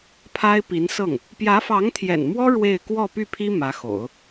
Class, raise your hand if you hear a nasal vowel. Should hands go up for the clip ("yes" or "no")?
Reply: no